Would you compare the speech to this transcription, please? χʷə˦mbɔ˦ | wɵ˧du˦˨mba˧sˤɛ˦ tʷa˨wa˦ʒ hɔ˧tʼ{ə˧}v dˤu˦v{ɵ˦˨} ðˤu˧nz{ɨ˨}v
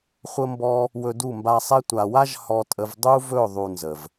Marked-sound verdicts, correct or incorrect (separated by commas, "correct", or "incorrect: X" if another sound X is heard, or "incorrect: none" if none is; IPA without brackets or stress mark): correct, correct, incorrect: ə˨